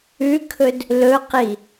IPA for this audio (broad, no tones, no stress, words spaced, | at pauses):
ʉkʰɵd | lɵqi